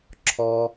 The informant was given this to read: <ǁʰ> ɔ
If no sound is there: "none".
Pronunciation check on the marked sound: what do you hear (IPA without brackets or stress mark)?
ǁʰ